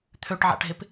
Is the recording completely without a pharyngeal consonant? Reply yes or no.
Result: no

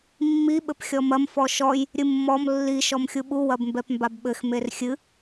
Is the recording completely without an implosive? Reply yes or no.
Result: no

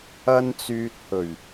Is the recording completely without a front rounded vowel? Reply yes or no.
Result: no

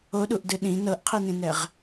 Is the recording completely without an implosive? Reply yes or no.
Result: no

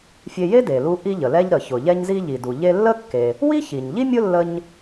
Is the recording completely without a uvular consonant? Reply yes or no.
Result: yes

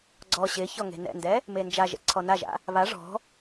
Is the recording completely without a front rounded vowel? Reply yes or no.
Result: yes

